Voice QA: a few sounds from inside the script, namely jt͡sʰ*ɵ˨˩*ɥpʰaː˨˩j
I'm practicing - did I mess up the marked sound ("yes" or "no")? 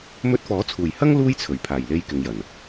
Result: no